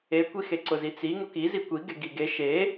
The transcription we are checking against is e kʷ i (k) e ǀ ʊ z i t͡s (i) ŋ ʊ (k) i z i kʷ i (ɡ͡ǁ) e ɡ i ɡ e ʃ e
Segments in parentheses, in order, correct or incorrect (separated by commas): incorrect, correct, correct, incorrect